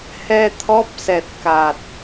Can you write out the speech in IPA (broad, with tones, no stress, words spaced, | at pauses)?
hɛ˧t̪ʰɔ˦˥p̚sɛ˨˩t̚ ka˨˩t̚